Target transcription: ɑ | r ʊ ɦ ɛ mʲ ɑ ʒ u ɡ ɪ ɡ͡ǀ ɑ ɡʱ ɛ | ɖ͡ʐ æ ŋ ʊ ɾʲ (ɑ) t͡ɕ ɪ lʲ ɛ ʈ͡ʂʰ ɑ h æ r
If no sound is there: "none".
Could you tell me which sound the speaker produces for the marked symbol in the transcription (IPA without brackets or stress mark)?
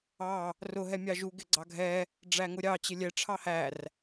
ɑ